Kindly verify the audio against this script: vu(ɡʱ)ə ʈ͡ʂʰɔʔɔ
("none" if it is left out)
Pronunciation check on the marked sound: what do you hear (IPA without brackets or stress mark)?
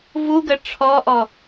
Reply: ɡ